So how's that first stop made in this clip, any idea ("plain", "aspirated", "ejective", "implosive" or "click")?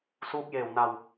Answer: plain